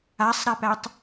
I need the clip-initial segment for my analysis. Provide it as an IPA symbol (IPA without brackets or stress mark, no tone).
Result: a